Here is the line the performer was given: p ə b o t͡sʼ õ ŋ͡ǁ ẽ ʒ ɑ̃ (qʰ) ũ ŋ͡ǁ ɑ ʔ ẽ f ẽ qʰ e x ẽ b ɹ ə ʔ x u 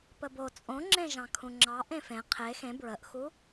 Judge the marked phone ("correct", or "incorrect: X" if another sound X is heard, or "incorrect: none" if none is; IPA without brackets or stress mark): incorrect: kʰ